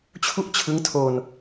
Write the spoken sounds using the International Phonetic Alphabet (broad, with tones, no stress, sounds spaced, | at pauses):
t͡ɕʰ u˥˩ ʔ t͡ɕʰ ɯ˦˥ ŋ tʰ o˧ n